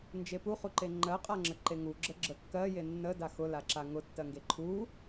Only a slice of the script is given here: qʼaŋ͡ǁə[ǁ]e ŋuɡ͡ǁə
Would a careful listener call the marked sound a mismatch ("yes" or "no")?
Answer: yes